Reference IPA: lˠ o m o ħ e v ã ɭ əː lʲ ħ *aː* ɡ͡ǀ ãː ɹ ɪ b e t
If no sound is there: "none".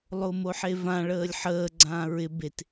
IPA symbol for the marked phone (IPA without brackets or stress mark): əː